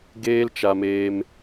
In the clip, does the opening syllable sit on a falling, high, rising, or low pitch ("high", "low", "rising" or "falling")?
high